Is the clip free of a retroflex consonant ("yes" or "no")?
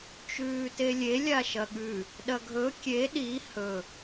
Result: yes